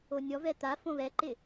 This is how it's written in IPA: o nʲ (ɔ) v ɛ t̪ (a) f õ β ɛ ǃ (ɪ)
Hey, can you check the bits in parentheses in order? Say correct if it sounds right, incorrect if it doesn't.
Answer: correct, correct, correct

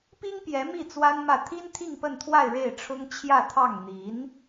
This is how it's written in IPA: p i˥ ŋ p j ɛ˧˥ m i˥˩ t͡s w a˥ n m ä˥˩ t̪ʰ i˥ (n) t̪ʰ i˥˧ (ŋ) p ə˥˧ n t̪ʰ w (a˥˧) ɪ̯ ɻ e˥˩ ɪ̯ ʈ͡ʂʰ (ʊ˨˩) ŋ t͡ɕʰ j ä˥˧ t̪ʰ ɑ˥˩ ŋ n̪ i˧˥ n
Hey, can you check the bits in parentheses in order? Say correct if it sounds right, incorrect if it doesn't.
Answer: correct, correct, correct, incorrect: ʊ˥

